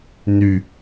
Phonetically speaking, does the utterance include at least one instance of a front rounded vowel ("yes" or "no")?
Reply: yes